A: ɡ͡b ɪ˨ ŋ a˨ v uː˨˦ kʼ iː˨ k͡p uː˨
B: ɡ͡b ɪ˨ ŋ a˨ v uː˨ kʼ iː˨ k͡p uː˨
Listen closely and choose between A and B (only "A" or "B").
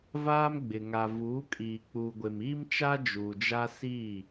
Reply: A